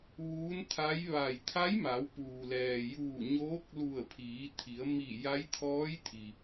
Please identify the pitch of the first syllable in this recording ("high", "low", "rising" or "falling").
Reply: rising